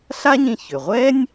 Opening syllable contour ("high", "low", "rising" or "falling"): high